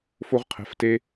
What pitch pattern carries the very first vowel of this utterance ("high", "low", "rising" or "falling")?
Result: high